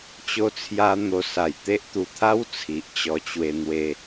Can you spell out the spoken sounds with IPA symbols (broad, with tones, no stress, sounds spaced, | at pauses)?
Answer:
t͡ɕ o˦ t͡sʰ j a˦ n̪ o˧ s a˨˩ j t̪ e˦ ʔ t̪ u˨˩ t̪ʰ a˦ w t͡sʰ i˨ ʔ t͡ɕ ɔ˧ t͡ɕ w e˧ n̪ w e˧